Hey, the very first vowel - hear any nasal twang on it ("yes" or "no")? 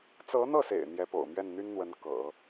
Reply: no